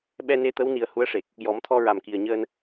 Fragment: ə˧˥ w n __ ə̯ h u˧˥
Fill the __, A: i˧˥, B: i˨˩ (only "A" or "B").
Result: B